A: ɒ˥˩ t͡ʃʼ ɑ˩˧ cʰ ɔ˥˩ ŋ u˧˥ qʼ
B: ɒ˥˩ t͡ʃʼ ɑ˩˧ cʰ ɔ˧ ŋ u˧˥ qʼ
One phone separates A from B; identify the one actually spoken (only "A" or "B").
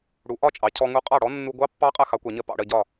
B